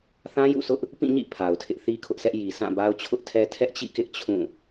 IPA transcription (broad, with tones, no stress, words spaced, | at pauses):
θã˦jṵ˦˨sʊ˦ʔ | pĩ˦˨ɲḭ˦˨ pʰa˨ʊ̯tʰɪ˦ʔ θi˦kʰʊ˦ʔsɛ˦ʔ ji˨sʰã˦˨ba˦ʊ̯ t͡ɕʰʊ˦ʔtʰɛ˦ tʰɛ˦ʔt͡ɕḭ˦˨kɪ˦ʔ t͡ɕʰũ˦˨